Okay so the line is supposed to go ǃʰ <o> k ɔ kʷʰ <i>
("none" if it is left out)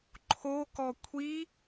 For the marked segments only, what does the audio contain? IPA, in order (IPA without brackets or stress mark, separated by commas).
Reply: o, i